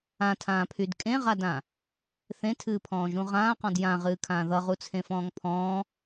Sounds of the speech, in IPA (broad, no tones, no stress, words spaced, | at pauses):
ãtʰãːpʰyd kʼẽʁadã | θẽtʰɨːpʰɔ̃ːʒũ ʁãːqɔ̃d jãʁɨːkʰãː ðʌʁut͡sʰẽfɔ̃ːŋ pʰɔ̃ː